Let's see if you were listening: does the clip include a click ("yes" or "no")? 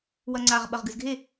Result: yes